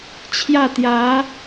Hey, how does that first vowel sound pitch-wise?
falling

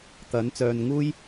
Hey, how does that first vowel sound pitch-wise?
rising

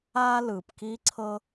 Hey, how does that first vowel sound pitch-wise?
high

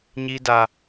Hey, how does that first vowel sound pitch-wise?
high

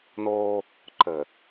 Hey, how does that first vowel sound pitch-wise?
high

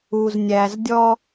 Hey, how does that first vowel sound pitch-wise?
low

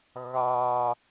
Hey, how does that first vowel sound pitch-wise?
low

